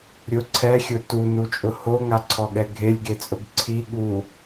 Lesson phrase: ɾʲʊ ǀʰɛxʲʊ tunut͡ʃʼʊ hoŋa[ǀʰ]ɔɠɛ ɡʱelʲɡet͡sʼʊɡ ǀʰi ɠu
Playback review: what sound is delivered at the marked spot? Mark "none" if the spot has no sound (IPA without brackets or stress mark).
ǀʰ